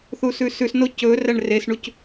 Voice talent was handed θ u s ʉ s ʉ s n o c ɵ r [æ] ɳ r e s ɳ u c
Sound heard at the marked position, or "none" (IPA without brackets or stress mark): æ